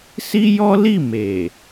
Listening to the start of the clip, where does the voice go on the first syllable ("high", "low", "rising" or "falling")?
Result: high